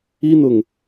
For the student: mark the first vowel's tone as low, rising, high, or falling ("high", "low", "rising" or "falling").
high